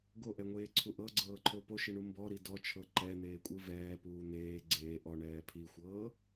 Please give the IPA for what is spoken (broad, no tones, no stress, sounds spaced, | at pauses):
ɡ o ʔ ɛ ŋʷ eː ǀʰ u ʔ ɤ ɡ͡ǀ ɤː ǃʰ o p o ʃ i ɳ u m b ɔ ɾ i d ɔ t͡ʃʰ ɤ ǃ ɛ n̪ eː kʷʼ ɯ v ɛː p uː n̪ eː ɡ͡ǀ eː ʔ ɔ ɳ ɛː pʰ i xʷ ɤː